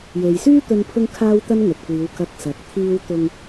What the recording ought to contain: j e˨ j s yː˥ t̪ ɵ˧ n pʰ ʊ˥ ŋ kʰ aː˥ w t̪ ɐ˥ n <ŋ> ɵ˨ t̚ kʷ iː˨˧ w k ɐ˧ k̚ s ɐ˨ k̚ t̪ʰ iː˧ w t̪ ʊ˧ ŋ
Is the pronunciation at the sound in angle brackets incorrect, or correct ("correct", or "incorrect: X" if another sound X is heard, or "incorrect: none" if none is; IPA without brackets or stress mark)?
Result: correct